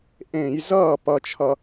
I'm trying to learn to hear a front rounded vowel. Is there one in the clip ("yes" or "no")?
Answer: no